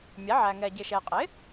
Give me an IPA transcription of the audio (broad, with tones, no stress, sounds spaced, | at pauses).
mʲ æ˩˥ ʕ æ˨ ŋ ɛ˨ ɟ ɪ˨ ʃ ɛ˨ qʼ ɪ˩˥